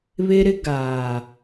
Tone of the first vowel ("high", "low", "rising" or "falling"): high